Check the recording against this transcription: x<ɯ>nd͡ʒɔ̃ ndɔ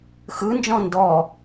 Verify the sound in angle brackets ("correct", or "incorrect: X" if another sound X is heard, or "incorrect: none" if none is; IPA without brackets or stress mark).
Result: correct